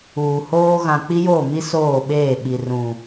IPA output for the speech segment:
uː˨ h oː˦ ɣ ã˨ k͡p i˦ j oː˦˨ m i˦ s oː˦˨ ɓ eː˦˨ ɓ i˨ r ũ˨

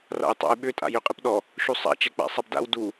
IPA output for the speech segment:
r a̰ j tˤ a̰ j ɓ ʏ tʼ a̰ j ø qʼ ɨ p ɗ ɔ | ʃ u sˤ a̰ t͡ʃ ɛ k͡p a̰ sˤ a b d a̰ w d u

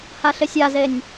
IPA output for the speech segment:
h a ɬ ɪ sʲ a z e nʲ

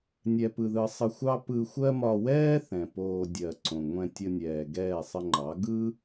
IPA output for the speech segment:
nʲ ɛ˨ p ɯ˨ ð ɯ˨ sˤ ə˧ xʷ ɑ˦ p ɯ˧ xʷ ɜ˦ m ɒ˧ w ɛː˦ θ ɛ̃˨ p oː˧ dʲ ɜ˨ ǀ õ˨ ŋʷ ɛ̃˧ tʲ ə˧ nʲ ɛː˨ ɡ ɛː˦˨ sˤ ə˧ ŋ͡ǃ ɑ˨˦ ɡ ɯ˦

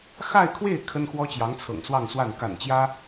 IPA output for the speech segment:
x a˥˧ ɪ̯ kʰ w e˥˩ ɪ̯ kʰ ə˥ n x w ɔ˥ t͡ɕ j ɑ˧˥ ŋ t͡sʰ ɤ̰˨˩ ŋ s w ɑ˥˧ ŋ s w a˥˩ n k a̰˨˩ n t͡ɕ j ä˥

